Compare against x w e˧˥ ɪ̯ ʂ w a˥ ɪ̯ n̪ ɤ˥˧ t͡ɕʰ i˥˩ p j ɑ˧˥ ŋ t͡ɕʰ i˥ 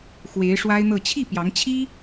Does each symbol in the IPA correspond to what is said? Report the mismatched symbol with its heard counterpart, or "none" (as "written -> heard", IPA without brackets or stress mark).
none